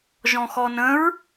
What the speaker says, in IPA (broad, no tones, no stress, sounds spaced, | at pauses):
ʒ ɔ̃ x ɔ n ə̃ ɹ